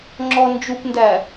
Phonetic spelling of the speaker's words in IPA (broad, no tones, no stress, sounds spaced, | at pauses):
ŋ͡ǁ ɔ n d͡ʒ u p n d æ